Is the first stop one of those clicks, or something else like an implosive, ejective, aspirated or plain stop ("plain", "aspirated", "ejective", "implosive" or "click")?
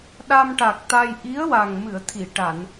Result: implosive